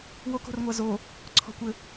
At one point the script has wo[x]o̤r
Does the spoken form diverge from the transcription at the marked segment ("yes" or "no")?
yes